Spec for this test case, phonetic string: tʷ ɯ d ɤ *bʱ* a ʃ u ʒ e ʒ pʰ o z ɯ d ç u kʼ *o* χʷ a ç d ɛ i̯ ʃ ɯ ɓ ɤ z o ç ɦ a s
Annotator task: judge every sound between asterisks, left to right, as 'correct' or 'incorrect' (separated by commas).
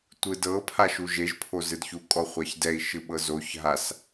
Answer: incorrect, incorrect